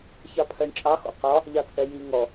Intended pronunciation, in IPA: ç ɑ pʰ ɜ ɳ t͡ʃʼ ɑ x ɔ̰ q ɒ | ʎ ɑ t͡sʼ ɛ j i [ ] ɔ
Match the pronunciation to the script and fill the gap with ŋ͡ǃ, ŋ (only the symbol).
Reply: ŋ